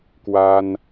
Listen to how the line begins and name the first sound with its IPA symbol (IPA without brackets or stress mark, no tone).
k